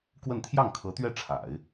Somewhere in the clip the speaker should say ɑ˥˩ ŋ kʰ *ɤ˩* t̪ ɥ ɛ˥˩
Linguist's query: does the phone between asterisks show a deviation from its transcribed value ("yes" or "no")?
yes